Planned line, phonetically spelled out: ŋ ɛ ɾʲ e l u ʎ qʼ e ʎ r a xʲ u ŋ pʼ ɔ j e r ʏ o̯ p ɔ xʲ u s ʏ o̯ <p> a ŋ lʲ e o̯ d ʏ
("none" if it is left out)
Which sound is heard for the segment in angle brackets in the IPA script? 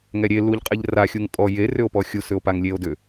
p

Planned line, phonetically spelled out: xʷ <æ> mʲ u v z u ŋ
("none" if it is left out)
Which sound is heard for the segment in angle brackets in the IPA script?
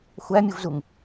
æ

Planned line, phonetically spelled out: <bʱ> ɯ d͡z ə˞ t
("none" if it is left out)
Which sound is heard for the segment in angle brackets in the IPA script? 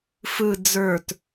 f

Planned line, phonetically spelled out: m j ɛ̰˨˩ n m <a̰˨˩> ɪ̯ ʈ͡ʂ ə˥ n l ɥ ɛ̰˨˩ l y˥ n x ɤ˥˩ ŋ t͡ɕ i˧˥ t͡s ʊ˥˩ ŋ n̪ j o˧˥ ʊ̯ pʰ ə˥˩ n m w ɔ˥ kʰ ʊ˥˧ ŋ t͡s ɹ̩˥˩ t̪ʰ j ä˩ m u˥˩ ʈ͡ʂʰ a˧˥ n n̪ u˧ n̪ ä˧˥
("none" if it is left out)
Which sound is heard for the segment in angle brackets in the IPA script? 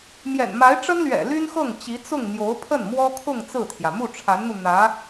a˧˥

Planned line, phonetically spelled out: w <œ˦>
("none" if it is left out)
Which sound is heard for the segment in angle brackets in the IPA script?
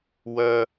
œ˦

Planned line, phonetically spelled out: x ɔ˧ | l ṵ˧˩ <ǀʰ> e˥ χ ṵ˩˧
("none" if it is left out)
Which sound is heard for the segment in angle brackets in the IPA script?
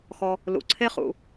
ǀʰ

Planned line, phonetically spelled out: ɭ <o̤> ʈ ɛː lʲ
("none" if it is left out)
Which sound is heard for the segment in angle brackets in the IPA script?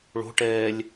o̤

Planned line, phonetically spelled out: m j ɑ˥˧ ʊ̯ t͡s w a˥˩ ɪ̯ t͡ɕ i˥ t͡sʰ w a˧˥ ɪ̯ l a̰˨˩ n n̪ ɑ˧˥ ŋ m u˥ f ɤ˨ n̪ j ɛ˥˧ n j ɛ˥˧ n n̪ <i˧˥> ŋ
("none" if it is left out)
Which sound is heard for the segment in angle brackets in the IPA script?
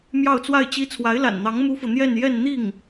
i˥˩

